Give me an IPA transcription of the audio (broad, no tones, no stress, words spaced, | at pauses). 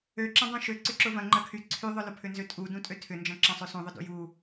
øǁɐ̃dˤũ ʃø ǀʏǁʊvɐ̃ ŋ͡ǃɐkʰy ǀʰyðˤʊlʊpʰʏ nzøtʼudũ tʼøtʰʏnd͡ʒɐ̃ ǁɐ̃sˤøsũðˤʊ dṵju